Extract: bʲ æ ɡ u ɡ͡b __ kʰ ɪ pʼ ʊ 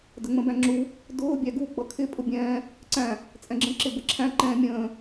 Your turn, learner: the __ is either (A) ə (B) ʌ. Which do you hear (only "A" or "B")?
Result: B